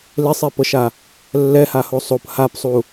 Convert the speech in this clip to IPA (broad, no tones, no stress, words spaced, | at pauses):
lesˤepɤʃa | lːɛhaho sˤop hapsˤu